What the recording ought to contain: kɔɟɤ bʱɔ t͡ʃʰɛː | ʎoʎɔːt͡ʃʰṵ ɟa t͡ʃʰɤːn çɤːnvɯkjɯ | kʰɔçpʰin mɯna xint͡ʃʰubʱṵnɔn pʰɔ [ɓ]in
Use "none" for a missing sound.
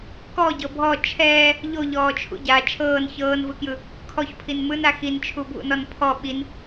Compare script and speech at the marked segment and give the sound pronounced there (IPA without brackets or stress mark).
ɓ